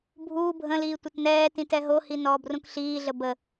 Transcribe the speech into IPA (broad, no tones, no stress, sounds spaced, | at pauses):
bʱ uː bʱ ə̃ l iː tʷ ə t n ɛː t ĩ t ɛ ɦ o h i n ɔː b r ũ k ɬ iː ɮ ə b ə